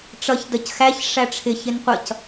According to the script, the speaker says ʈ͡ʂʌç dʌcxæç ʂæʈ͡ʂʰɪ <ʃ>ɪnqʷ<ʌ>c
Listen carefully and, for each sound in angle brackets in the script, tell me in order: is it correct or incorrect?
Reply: incorrect: ç, correct

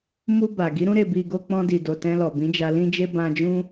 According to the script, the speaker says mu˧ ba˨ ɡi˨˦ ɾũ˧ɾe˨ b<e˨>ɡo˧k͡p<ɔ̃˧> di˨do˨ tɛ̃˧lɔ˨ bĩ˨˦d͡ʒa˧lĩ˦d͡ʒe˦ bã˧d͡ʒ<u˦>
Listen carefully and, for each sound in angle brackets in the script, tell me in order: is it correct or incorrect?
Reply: incorrect: i˨, correct, incorrect: ũ˦

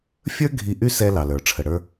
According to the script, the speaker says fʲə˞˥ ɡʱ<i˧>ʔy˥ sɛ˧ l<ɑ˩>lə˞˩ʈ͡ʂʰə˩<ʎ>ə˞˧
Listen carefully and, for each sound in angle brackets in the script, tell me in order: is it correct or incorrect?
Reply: correct, correct, incorrect: ɽ

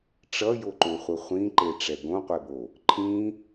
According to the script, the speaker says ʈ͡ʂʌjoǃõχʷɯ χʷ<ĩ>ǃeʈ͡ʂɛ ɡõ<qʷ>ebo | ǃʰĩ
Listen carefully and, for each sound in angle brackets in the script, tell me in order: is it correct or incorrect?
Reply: correct, correct

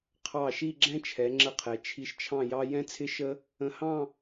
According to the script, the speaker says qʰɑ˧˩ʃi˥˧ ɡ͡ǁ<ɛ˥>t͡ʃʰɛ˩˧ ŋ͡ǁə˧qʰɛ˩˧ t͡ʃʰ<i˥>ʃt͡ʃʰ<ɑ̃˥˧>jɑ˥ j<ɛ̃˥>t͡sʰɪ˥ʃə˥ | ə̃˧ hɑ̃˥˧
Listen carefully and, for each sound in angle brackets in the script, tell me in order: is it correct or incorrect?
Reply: incorrect: ɛ̃˥, incorrect: i˧, correct, correct

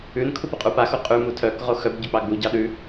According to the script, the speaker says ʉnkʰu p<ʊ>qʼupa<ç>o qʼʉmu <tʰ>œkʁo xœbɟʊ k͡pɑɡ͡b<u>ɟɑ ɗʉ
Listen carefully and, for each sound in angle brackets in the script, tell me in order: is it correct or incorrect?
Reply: correct, incorrect: x, correct, correct

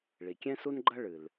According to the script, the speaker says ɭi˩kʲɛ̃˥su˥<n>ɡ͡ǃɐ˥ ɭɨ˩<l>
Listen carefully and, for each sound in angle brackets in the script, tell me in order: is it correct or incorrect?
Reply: correct, correct

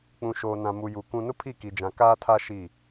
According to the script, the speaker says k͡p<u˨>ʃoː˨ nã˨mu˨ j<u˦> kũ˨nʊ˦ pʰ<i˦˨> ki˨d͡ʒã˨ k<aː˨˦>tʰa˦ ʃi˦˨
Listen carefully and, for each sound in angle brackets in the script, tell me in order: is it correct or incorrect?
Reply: incorrect: ũ˨, incorrect: u˨, correct, incorrect: aː˦

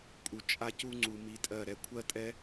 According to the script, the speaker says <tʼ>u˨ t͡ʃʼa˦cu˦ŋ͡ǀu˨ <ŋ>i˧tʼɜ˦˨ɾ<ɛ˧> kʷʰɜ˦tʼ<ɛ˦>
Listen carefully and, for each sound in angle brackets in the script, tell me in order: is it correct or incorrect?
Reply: incorrect: kʼ, incorrect: m, correct, correct

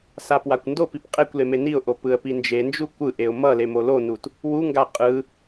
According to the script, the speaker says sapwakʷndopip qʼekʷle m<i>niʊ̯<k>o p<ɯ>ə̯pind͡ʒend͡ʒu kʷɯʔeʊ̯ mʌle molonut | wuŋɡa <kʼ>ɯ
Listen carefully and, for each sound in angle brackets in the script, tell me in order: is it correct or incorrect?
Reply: incorrect: e, incorrect: ʔ, correct, incorrect: qʼ

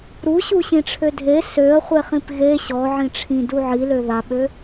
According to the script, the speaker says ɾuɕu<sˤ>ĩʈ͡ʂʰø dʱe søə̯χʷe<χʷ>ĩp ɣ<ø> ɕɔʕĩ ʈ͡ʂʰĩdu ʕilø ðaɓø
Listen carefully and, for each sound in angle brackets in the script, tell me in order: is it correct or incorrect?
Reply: incorrect: ɕ, incorrect: χ, incorrect: e

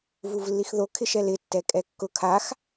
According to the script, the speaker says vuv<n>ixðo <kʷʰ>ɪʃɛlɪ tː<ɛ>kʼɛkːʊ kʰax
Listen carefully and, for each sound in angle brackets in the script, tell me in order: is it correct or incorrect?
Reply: incorrect: lː, incorrect: kʰ, correct

